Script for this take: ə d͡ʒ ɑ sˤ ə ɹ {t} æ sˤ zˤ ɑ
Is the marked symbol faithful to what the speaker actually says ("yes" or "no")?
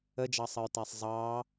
yes